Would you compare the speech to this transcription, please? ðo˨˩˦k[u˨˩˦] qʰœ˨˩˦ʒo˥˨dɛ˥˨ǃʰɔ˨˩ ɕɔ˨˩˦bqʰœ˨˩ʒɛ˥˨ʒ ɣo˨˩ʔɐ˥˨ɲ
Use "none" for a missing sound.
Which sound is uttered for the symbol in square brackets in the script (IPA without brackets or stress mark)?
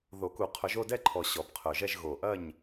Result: u˨˩˦